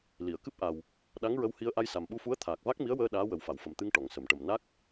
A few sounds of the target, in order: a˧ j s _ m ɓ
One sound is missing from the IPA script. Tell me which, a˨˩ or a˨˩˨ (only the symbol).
a˨˩